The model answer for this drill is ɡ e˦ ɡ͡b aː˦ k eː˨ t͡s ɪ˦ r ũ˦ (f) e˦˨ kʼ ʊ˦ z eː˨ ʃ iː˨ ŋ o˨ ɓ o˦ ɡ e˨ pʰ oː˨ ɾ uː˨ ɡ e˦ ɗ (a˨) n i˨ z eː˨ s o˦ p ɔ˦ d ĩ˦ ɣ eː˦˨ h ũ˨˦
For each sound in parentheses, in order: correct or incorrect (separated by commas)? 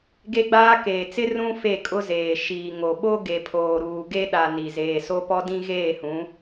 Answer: correct, correct